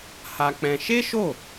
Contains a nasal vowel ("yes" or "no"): yes